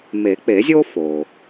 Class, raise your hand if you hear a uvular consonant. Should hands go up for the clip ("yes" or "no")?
no